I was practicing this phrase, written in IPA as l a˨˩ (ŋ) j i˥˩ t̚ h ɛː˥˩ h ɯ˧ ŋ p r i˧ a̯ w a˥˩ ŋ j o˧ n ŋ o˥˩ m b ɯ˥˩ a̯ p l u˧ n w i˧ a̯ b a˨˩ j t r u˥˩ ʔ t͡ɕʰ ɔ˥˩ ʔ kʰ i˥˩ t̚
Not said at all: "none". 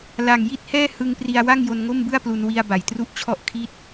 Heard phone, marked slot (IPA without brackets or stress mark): ŋ